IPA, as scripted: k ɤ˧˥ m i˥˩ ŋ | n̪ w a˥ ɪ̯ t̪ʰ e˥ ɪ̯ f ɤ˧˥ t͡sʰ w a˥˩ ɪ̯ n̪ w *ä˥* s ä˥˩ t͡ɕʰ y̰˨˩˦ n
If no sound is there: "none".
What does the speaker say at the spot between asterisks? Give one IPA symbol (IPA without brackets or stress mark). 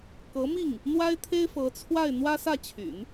ä˥